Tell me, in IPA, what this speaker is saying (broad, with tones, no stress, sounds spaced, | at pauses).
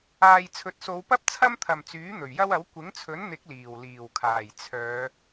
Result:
aː˨ j t͡sʰ ɵ˨ t̚ s o˨˧ w p ɐ˥ p̚ t͡sʰ ɐ˥ m t̪ʰ ɐ˨ m t͡s yː˨˥ n̪ ɵ˨˩ ɥ j ɐ˥ w ɐ˨˥ w kʷ ɪ˨˥ ŋ t͡sʰ ɵ˨˥ n n̪ ɪ˨˥ k̚ l iː˨˩ w l iː˨˩ w kʰ aː˨˩ j t͡sʰ œː˨˧